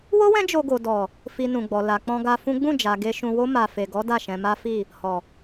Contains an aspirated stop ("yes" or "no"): no